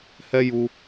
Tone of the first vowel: high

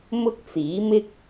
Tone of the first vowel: high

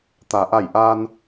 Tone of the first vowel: low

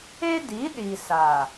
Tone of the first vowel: high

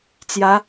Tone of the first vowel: rising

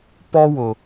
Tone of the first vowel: high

